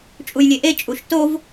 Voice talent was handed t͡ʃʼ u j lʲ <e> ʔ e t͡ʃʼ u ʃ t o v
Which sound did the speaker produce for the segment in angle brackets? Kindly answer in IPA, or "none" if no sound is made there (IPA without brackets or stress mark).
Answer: e